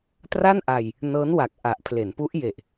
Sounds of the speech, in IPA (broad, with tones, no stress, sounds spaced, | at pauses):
t r a˥˩ n ʔ a˧ j | n ɤː˦˥ n w a˨˩ k̚ ʔ a˨˩ ʔ pʰ l e˩˦ n p u˦˥ ʔ j e˨˩ ʔ